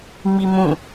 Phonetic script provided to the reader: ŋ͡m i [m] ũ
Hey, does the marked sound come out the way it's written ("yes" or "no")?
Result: yes